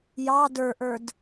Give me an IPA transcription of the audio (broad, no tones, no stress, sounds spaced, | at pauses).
j ɑ d ə˞ ʔ ə˞ d